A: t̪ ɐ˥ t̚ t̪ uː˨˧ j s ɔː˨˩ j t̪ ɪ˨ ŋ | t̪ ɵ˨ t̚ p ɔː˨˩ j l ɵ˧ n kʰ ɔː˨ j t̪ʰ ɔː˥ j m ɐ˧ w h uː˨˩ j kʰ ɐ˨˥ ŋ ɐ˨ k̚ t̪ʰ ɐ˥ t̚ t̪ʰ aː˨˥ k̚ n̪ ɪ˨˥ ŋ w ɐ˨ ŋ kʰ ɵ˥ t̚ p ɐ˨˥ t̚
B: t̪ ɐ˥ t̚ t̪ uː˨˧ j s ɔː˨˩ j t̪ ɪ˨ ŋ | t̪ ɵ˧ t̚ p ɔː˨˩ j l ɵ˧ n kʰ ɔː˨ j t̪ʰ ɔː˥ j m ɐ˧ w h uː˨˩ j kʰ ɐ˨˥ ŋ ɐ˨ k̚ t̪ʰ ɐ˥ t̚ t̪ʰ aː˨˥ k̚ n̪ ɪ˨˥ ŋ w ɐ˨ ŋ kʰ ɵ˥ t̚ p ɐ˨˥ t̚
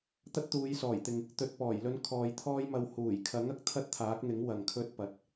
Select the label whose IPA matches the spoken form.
A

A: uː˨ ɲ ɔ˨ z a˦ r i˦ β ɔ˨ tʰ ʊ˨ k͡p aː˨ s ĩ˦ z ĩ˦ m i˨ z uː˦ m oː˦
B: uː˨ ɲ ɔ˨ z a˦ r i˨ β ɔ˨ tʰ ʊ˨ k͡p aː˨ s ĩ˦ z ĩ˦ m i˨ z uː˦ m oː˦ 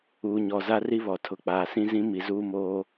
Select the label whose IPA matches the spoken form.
A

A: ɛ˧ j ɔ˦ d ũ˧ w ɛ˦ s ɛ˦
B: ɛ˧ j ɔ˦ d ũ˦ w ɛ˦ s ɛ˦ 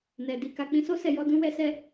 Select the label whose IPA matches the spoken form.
B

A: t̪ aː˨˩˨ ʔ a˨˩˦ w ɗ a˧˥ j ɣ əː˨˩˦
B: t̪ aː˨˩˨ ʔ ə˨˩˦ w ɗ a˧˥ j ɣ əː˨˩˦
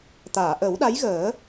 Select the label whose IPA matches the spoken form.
B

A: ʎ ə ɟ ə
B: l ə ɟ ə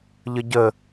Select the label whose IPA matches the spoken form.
A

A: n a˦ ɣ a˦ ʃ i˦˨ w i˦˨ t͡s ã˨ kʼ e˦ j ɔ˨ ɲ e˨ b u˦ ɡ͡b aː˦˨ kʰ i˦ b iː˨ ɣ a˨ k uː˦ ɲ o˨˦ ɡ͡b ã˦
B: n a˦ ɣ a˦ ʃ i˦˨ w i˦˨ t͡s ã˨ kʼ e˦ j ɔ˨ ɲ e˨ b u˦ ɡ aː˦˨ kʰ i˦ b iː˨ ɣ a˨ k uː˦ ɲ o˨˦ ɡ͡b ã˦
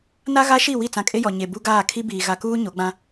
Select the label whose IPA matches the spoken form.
B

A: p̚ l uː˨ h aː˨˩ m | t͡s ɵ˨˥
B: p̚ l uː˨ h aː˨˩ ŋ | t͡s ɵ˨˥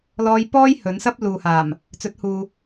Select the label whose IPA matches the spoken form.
A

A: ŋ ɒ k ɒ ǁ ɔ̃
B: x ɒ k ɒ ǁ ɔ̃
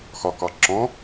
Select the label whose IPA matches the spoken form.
B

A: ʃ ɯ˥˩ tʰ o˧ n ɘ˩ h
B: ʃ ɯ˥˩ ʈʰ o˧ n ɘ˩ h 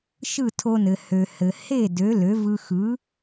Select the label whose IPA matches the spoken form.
A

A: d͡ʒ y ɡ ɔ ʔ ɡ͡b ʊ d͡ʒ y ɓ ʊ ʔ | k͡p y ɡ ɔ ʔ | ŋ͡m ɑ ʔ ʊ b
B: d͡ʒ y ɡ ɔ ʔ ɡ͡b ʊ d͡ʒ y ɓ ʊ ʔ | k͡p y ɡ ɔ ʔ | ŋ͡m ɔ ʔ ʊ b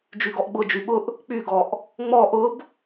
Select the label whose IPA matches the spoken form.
B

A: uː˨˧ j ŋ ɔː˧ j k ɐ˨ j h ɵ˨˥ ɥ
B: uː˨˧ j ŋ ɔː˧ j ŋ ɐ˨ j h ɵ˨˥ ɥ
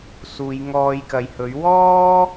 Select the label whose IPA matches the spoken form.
A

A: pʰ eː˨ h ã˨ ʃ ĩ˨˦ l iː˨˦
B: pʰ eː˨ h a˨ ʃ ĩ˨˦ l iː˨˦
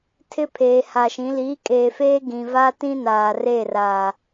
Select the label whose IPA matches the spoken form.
B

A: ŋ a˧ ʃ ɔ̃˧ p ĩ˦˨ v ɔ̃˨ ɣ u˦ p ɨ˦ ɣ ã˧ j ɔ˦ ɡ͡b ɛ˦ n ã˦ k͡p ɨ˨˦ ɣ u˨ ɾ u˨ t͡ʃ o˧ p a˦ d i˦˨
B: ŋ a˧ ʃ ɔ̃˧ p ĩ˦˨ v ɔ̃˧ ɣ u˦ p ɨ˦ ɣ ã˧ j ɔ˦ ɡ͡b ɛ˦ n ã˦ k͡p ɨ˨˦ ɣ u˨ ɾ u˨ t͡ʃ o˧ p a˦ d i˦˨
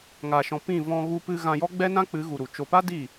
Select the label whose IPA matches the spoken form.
B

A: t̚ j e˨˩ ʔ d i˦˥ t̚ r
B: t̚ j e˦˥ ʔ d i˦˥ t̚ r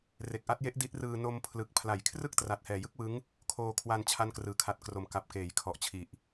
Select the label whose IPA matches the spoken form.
B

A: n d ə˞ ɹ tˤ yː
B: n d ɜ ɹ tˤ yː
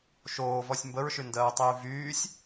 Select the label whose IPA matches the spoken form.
B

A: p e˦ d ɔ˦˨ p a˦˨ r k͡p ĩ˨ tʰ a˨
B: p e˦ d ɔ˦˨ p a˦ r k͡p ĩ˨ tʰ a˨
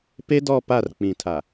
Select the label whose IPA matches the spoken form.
A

